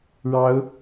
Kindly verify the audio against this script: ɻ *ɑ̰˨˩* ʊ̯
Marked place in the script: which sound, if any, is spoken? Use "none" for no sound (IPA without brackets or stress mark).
ɑ˨˦